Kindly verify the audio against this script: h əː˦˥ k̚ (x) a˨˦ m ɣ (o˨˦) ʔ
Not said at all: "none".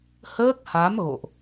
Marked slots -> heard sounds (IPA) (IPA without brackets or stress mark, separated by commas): h, o̰˧˨